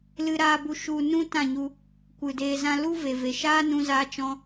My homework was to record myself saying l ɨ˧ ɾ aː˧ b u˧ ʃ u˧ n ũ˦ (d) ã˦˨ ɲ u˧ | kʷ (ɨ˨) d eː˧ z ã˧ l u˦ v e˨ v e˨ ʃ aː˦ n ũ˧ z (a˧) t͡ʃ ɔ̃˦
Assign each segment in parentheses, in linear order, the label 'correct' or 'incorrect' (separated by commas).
incorrect, correct, correct